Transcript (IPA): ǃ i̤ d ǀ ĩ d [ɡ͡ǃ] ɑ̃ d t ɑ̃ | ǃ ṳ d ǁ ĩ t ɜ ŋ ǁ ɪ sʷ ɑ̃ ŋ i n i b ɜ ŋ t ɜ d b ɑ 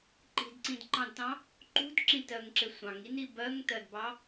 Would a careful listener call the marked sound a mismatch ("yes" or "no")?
yes